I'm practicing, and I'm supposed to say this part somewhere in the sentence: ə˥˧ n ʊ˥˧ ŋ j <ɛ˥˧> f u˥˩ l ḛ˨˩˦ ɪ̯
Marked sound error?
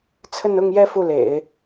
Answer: no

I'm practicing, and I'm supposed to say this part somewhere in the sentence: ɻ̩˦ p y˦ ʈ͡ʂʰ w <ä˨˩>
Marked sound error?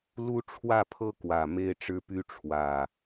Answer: no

